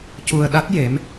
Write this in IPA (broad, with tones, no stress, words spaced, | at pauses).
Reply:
cu˧ə̯ɗa˦˥t̚ je˧˥m